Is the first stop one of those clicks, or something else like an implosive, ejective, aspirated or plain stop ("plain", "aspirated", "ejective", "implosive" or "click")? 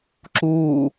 click